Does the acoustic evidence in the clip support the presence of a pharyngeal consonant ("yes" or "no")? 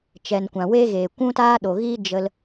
no